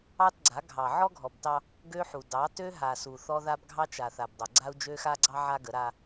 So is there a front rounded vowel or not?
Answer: yes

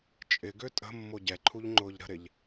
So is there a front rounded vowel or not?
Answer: yes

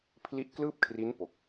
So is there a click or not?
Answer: no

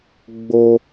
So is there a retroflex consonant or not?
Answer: no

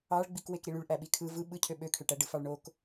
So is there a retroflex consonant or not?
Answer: yes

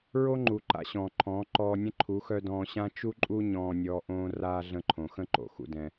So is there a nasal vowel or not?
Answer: yes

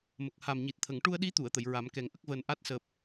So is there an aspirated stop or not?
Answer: yes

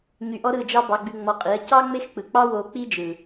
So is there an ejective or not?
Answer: yes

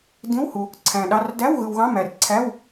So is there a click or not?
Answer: yes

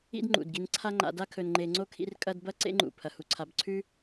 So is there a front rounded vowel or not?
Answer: no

